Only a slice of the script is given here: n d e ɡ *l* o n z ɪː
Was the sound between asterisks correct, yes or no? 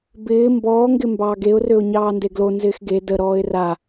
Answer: yes